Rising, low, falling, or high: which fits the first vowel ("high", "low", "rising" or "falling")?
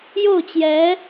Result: falling